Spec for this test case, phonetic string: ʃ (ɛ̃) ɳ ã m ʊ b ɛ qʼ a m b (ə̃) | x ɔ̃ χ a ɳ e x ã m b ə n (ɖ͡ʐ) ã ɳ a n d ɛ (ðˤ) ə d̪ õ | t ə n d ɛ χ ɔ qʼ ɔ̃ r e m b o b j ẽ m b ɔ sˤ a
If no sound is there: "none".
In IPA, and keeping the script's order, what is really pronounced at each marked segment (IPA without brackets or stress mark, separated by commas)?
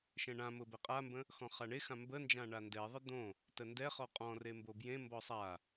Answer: ɛ̃, ə̃, d͡ʒ, ðˤ